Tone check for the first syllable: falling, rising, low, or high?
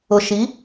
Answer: low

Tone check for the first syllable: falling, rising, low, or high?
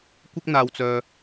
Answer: high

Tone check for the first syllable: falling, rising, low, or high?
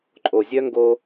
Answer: low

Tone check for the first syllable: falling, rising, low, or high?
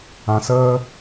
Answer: low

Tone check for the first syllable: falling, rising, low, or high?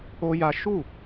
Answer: high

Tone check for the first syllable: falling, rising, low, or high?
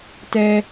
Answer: high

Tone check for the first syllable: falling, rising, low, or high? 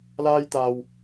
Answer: high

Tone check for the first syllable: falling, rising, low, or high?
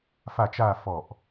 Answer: falling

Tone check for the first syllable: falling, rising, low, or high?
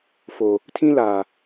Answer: low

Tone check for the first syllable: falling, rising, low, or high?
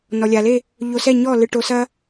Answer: low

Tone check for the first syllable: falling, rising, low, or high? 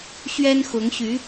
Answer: high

